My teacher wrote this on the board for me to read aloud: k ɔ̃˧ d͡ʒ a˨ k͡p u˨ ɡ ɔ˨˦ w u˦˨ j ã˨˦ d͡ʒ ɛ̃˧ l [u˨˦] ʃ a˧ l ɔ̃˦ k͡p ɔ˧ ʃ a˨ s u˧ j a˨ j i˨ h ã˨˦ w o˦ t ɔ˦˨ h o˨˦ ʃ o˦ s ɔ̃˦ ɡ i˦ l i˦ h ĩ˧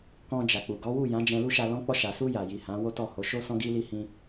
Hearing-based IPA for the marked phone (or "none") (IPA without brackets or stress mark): u˦